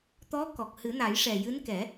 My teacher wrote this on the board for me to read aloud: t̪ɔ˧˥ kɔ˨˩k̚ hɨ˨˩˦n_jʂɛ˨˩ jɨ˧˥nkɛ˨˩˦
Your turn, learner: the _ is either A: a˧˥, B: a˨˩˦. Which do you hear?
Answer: B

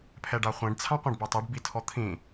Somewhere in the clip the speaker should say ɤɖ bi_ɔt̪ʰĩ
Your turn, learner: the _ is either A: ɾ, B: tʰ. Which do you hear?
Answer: B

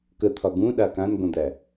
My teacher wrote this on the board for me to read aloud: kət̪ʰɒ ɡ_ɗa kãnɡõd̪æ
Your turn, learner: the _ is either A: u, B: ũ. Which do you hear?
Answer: B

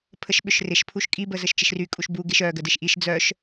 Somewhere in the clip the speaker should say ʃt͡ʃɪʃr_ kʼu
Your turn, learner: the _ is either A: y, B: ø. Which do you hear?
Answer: A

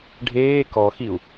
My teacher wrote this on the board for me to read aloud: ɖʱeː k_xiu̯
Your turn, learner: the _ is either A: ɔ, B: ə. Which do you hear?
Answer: A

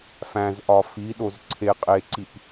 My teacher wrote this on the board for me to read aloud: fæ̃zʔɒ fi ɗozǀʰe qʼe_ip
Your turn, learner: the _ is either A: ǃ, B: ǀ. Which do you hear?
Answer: B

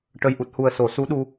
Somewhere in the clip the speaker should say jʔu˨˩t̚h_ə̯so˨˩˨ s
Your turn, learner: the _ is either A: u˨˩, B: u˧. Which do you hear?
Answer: A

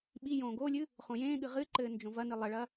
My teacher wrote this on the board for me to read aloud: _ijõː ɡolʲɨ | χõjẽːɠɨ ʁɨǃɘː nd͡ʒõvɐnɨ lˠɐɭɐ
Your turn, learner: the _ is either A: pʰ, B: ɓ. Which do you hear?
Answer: B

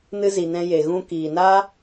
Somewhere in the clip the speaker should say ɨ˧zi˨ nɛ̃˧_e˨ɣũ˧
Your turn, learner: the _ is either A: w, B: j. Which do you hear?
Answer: B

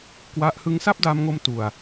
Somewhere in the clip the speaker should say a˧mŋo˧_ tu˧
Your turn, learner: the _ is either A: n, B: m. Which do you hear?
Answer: B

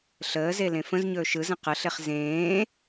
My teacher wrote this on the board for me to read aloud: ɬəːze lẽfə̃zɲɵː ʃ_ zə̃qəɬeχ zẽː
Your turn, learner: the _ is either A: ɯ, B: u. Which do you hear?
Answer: A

